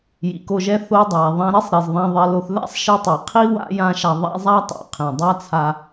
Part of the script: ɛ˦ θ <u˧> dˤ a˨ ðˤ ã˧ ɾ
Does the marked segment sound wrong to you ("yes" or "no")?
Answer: yes